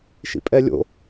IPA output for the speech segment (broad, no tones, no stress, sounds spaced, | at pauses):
ʃ ḭ pʼ ɛ lʲ o̰